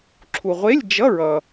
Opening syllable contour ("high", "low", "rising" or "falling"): low